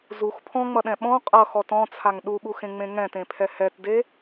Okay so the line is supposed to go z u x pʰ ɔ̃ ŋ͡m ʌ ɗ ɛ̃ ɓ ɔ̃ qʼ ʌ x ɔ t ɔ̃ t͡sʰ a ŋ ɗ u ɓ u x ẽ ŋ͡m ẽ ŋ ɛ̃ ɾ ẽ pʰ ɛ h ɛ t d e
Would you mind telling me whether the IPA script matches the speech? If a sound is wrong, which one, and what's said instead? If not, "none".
ɾ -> t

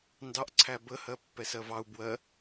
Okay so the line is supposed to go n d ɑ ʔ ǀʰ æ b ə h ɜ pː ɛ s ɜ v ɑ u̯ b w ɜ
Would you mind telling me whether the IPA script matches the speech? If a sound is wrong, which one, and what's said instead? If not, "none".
none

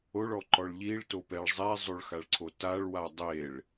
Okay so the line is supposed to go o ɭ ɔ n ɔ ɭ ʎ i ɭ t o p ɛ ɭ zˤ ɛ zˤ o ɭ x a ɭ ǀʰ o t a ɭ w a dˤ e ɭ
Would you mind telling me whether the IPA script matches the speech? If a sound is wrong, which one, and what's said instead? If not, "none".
n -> ǃ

